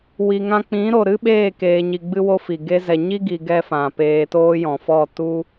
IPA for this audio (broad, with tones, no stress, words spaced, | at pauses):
wi˨ŋã˧k͡pĩ˨˦ ɾo˨ ɾɨ˦ɓeː˦˨keː˨ɲi˨ ɡ͡bɨ˦wo˦fi˨ ɡe˧zɛ˨ɲi˦ɡi˨ ɡɛ˦fã˨ peː˧toː˦jɔ̃˨fɔ˦˨ tu˦